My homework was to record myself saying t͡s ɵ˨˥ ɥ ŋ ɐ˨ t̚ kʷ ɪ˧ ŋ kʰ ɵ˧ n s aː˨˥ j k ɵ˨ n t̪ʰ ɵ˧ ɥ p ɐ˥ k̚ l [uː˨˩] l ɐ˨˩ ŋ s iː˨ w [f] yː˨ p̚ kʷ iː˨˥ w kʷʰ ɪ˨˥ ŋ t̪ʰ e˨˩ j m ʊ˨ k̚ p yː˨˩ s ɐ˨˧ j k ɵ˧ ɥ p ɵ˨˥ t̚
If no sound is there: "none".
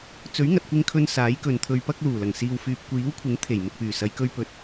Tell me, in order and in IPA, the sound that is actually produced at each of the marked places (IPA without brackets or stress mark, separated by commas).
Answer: uː˨˩, f